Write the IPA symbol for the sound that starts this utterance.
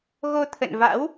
ɣ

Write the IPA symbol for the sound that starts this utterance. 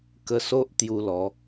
k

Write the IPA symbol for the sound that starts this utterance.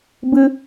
b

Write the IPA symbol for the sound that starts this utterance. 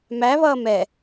m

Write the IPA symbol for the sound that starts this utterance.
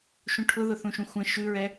ʃ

